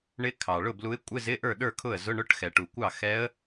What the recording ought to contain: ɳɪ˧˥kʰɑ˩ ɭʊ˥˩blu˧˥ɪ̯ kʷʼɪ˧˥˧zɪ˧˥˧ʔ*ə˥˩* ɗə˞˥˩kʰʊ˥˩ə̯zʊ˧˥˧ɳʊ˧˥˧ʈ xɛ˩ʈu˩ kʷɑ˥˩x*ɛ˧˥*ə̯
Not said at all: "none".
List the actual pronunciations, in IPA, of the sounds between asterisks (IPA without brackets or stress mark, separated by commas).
ə˞˥˩, ɛ˧˥